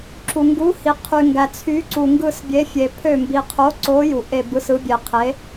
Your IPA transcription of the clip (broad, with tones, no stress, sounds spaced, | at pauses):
ǁ u˨ ŋ ɡ u˨˥ h i˨ qʰ y˨ ŋ ɡ æ˨ t͡sʰ y˨˥ ǀ u˨ ŋ ɡ ɯ˦˨ s bʲ e˨˥ fʲ e˨ pʰ ø˦˨ m b i˨ qʰ o˨˥ ǀ o˨˥ j u˨ ʔ e˦˨ b ɯ˨˥ s ɯ˨˥ bʲ e˨ qʰ e˨˥